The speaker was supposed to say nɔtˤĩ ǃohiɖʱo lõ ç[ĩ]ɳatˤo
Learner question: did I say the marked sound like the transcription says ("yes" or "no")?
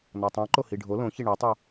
no